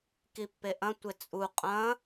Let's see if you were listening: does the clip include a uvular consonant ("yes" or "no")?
yes